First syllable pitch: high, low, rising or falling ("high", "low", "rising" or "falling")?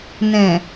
low